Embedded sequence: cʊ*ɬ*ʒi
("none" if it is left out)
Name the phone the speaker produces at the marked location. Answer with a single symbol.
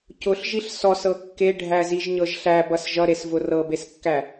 ɬ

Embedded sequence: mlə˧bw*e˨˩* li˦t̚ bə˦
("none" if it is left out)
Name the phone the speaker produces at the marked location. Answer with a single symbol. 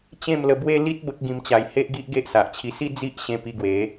e˦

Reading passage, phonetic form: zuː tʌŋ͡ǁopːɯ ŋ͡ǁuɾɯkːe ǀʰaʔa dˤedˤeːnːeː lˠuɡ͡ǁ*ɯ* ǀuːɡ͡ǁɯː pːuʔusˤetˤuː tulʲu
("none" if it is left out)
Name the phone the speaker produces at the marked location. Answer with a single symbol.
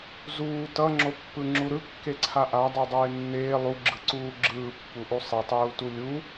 ɯ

